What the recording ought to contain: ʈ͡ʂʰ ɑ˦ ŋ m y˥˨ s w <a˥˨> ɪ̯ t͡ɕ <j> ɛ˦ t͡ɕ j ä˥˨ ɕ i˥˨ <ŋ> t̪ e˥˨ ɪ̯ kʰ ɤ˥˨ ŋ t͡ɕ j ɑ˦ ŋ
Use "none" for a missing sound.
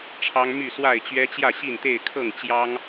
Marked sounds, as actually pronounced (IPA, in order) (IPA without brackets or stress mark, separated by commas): a˥˨, ɥ, n